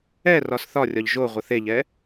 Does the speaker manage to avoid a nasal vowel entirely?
yes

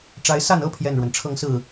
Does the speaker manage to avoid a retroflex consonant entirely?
no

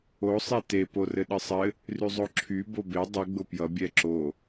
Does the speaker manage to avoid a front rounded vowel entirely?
no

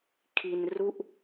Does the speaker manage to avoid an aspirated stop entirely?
no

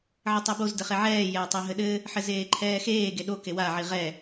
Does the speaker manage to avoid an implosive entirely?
no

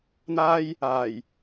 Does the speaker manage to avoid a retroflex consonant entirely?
yes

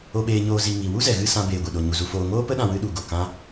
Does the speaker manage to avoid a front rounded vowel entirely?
yes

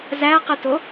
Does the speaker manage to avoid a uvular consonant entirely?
no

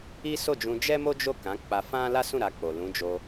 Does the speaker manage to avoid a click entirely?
yes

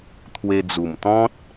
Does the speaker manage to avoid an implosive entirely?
yes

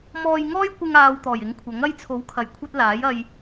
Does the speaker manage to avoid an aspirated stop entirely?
no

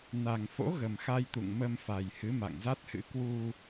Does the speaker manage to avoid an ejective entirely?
yes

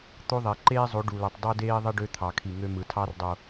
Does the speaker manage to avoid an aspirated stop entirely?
no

